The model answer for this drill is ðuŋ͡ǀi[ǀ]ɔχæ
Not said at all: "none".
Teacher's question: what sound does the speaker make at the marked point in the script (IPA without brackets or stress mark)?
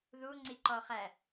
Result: ǃ